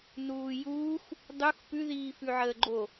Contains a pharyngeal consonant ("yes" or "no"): yes